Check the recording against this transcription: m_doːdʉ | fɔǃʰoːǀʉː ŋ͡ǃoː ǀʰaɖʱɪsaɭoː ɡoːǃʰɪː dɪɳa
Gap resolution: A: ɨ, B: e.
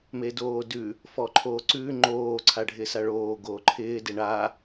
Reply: B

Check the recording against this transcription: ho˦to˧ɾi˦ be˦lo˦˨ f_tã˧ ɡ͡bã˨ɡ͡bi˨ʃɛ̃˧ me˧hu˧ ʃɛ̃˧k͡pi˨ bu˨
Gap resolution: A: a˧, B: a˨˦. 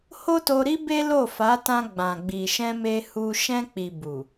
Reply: B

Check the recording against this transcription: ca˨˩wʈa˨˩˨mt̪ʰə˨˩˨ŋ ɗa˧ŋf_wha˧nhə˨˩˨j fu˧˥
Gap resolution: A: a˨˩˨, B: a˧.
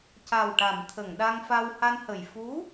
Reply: B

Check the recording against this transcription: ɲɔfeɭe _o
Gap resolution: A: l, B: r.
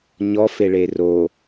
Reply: B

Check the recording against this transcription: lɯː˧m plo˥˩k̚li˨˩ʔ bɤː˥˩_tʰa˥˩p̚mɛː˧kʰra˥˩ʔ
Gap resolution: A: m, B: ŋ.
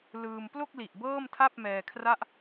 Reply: A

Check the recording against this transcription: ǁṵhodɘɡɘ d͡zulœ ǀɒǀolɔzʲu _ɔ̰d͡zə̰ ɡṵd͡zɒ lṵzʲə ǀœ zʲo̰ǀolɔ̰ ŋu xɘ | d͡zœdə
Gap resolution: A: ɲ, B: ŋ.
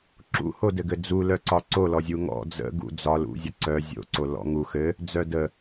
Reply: B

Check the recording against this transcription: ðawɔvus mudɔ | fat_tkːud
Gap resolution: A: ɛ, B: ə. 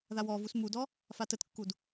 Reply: B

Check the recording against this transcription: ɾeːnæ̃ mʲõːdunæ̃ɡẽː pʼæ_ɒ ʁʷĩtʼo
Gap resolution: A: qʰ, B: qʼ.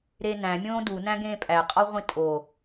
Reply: B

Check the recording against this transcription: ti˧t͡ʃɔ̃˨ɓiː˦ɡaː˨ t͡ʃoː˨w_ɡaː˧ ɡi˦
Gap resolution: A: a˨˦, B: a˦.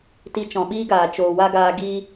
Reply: B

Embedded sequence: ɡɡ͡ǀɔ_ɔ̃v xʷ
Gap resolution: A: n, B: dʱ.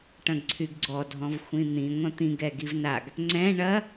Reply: B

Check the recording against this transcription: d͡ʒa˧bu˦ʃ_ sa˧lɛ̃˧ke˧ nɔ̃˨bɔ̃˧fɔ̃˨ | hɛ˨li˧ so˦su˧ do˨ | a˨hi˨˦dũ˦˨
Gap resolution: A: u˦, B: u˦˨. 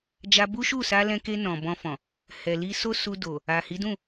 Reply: B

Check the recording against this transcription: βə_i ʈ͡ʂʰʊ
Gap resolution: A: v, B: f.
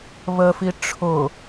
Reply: B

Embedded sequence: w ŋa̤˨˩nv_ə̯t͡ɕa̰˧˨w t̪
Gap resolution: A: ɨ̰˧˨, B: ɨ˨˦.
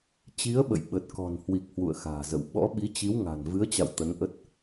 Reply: B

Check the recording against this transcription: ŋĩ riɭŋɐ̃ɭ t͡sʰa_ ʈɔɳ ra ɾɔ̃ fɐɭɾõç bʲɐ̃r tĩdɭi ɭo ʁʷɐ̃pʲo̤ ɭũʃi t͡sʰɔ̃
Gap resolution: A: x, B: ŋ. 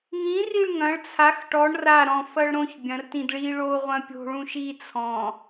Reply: A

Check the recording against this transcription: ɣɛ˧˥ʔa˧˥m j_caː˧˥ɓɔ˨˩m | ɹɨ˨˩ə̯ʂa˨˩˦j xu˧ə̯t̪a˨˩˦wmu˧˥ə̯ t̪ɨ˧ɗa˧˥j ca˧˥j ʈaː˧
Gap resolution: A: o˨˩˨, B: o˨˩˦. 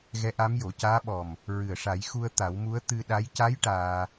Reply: A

